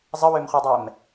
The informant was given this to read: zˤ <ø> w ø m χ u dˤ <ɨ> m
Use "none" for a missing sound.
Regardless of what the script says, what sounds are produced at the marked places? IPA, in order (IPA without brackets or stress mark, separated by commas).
ə, ɛ